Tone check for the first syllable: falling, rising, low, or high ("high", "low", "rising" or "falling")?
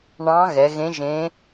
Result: rising